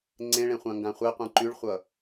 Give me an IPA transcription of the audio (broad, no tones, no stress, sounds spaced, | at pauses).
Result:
ŋ͡ǀ ẽ ɭ ẽ χʷ ã ŋ ɡ ã χʷ e qʷ ẽ ǃ y ɭ χʷ ʌ